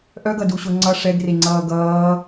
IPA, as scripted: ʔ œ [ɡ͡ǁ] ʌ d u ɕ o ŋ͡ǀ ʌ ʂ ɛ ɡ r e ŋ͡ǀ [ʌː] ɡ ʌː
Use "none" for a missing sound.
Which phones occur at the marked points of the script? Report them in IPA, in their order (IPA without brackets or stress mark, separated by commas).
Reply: ɡ, ʌː